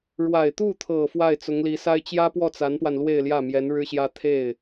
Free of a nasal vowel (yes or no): yes